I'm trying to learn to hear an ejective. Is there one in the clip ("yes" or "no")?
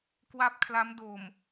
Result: no